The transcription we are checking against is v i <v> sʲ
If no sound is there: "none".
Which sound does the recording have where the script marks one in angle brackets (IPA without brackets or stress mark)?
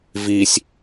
none